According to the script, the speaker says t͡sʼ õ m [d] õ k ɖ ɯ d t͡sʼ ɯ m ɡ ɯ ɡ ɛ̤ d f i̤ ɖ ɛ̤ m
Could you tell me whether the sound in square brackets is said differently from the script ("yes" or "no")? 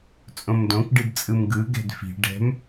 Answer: no